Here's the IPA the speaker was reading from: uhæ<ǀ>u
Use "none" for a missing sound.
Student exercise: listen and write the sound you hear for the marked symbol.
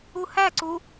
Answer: ǀ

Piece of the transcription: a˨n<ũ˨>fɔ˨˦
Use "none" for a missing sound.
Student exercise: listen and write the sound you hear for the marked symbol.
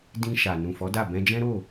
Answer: ũ˨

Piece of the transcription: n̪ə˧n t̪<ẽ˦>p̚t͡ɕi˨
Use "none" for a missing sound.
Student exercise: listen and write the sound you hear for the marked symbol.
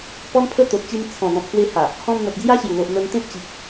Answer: ẽ˦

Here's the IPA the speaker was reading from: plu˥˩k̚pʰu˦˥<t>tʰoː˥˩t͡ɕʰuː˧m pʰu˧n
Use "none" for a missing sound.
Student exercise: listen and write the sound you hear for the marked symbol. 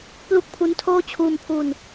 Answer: n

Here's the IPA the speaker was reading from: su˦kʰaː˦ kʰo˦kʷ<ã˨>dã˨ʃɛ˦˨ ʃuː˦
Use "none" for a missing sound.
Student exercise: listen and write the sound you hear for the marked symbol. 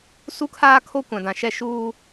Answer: ã˨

